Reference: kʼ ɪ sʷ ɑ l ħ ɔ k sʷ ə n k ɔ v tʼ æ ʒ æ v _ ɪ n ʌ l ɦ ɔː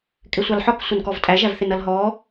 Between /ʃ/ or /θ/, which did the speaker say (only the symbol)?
θ